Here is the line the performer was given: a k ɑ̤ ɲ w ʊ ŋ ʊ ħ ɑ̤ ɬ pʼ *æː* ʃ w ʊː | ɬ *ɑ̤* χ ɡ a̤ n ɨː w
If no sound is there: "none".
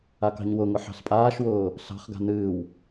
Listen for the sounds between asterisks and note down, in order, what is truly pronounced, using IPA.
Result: aː, ɑ̤

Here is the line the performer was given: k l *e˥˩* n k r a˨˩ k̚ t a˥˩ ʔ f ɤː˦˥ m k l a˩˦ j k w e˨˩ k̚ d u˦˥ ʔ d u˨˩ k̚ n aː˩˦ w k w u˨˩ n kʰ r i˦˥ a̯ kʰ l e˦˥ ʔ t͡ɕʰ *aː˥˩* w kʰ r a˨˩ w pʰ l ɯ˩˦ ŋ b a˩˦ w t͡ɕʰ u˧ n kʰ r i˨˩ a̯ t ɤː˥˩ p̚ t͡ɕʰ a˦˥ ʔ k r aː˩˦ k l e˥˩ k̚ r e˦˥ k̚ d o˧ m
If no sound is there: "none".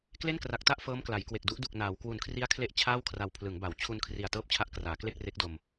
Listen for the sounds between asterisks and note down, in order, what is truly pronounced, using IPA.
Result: e˥˩, aː˥˩

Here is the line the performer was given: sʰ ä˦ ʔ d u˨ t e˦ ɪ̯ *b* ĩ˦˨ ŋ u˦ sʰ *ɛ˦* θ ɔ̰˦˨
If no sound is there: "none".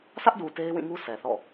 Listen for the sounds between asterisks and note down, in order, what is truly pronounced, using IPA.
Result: w, ɛ˨

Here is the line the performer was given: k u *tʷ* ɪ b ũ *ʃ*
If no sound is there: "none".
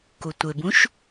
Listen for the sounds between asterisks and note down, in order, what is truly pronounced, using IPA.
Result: tʷ, ʃ

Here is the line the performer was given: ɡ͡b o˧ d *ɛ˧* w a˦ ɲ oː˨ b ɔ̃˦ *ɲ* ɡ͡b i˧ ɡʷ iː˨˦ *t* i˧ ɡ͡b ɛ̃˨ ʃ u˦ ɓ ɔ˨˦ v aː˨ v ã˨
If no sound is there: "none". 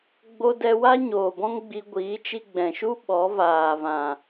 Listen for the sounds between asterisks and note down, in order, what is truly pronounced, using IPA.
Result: ɛ˧, ŋ, t͡ʃ

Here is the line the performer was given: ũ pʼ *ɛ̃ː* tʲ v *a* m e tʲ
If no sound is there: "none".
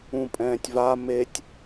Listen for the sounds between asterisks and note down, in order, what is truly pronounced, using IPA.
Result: ɛ̃ː, a

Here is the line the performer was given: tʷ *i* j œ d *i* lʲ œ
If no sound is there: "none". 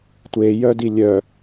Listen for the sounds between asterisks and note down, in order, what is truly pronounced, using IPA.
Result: e, i

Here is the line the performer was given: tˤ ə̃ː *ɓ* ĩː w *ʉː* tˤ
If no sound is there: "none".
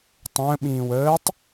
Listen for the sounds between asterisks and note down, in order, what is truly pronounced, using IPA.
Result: ɓ, əː

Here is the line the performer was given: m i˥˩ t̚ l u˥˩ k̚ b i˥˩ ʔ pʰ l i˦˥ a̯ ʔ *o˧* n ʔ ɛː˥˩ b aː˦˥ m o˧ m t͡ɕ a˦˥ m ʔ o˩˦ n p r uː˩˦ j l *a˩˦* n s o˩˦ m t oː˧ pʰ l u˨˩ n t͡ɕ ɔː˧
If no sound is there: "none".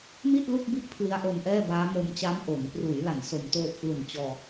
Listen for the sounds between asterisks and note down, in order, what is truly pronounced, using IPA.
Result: o˧, a˩˦

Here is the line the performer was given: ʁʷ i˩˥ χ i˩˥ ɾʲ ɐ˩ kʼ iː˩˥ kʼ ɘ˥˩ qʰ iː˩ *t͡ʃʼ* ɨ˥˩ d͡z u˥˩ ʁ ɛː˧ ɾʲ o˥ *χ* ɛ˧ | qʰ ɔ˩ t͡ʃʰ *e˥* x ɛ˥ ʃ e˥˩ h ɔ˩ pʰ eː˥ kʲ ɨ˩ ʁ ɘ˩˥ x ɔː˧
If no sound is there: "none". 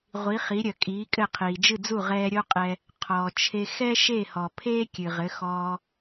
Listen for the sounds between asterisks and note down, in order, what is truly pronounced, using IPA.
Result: d͡ʒ, qʼ, e˧

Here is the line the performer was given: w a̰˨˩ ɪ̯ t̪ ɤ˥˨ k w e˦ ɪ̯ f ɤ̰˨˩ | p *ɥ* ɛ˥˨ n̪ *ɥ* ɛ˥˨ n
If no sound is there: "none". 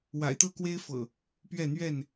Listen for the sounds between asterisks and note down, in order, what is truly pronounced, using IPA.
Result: ɥ, ɥ

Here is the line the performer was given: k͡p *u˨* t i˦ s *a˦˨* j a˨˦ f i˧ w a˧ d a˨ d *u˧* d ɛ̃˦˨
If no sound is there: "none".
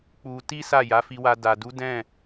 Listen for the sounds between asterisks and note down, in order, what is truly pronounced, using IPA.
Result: u˧, a˦˨, u˨˦

